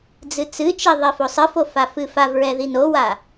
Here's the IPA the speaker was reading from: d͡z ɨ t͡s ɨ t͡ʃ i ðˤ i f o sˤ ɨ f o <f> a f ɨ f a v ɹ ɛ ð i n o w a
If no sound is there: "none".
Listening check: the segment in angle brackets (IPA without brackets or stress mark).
f